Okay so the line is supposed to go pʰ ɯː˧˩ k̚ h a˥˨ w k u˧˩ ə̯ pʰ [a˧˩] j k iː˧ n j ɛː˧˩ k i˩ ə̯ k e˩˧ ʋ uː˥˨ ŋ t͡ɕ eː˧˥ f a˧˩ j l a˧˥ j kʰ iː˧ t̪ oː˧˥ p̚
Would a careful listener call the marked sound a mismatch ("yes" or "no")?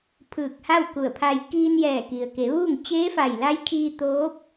yes